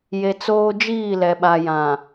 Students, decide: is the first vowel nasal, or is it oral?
oral